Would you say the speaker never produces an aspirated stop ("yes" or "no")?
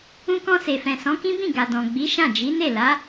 yes